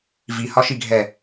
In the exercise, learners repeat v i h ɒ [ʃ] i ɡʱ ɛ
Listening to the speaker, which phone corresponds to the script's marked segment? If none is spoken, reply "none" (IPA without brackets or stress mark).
ʃ